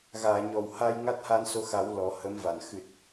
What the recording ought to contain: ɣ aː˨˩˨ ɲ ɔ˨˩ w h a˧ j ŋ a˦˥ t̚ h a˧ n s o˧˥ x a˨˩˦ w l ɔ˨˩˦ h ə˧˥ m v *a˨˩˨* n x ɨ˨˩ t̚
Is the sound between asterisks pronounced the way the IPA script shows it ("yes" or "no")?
yes